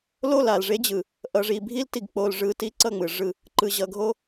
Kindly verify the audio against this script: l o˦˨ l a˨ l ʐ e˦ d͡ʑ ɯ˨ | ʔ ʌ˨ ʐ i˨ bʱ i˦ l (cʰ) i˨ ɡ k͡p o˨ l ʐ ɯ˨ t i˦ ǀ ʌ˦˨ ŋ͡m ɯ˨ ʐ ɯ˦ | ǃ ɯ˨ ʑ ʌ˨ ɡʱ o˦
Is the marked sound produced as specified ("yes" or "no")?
no